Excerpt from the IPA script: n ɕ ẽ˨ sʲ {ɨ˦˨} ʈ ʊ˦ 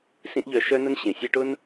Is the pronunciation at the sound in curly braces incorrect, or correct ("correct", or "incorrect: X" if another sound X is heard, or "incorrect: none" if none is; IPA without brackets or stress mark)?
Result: incorrect: ɨ˦